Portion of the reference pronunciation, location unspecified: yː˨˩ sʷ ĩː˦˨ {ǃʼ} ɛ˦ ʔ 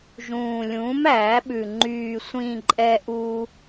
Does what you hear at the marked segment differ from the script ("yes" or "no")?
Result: no